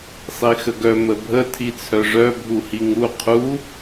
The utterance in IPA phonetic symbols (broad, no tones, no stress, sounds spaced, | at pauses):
sˤ i x ə ɡ œ m ə bʱ ə tʰ i t͡sʰ œ ʐ œ bʱ u h i ŋ u qʰ u